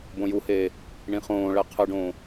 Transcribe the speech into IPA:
b õ j u h eː | ɳ ĩ χ õː ɭ ɛ qʰ ɯ ɖ õː

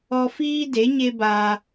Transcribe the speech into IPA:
ɔ˧ f iː˦ d e˨˦ ɲ e˦ b aː˧

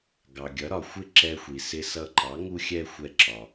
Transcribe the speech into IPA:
ɡ ɑ˩ ɡʲ ʌ˩˥ ɾ ɒ˩ xʷ ɪ˥˩ ǁ ɛ˧ xʷ i˩ s ɪ˧ s ʌ˧ ǃ ɑ˩˥ ŋ u˥ xʲ ɛ˥ xʷ ɛ˧ ǁ ɒ˩

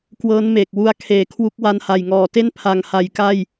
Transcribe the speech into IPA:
k w ɤː˦˥ n m eː˨˩ k̚ w u˦˥ a̯ kʰ eː˨˩ kʰ w u˦˥ k̚ w a˧ n h a˨˩ j ŋ ɔː˨˩ t e˥˩ n pʰ a˨˩ ŋ h a˩˦ j k a˥˩ j

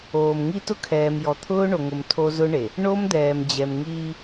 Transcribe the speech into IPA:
oː˨ m ŋ i˦ t ʊ˦ kʰ ɛː˨ m j ɔ˨ t̪ʰ ʊː˦ ɳ o˨ ŋ ʊ˨ m tʰ o˦ z ʊ˦ ɳ e˨ | ɳ o˦ m d̪ ɛː˨ m d͡ʑ ɛ˨ m ŋ iː˦

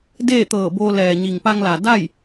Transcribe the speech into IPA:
d eː˥˨ t̪ ɤː˧˩ b oː˧ l ɛː˩ ɲ i˩ ŋ p a˧ ŋ l a˩ d a˥˨ j

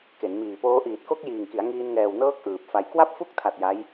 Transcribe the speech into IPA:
k e˩˦ n m iː˨˩ p oː˦˥ ʔ iː˨˩ t̚ k o˦˥ k̚ j iː˨˩ ŋ k i˩˦ a̯ ŋ iː˧ n ŋ ɛː˨˩ w n ɤː˦˥ k̚ ʔ ɯː˨˩ p̚ f a˨˩ j k w a˥˩ p̚ f u˦˥ k̚ tʰ a˨˩ t̚ j a˦˥ j

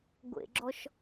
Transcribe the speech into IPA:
ɡʷ ḛ ɡ͡ǁ ɔ ʃ

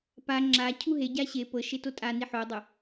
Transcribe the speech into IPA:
p a ŋ͡ǁ a cʰ u ɦ e ɟ a ɕ e p ɤ ʃ e t o tʼ a n i ħ o dˤ o

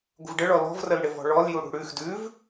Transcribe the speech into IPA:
ɡʷ ə̤ v ɖ ə ɭ ɔ l ɔ̤ v r ə l ɽ ɪ v ɔ̤ ɭ ɔ l j u ɽ ṳ ɽ ʉ x d ʉ v

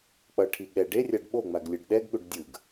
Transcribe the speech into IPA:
k͡p ʌ ʈʰ i ɠ ɛ ɖ e rʲ a ɖ ɓ o ŋ͡m a ɡ lʲ ɯ ɖ ɗ ɛ ɡ ɠ u ɖ dʲ ɯ ɡ

